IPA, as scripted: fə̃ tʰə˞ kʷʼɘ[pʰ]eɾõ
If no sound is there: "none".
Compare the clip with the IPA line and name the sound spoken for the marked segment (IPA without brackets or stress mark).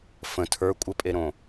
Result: pʼ